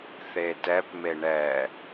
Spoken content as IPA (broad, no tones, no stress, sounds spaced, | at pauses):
θ e t ɛ p m e ɳ ɛ